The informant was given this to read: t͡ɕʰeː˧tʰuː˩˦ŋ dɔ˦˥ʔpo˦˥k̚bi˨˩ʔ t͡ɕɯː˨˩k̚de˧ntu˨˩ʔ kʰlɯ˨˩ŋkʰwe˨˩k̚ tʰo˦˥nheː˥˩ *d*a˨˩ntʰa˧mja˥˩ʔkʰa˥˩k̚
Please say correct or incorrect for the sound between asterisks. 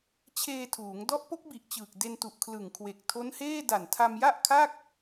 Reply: correct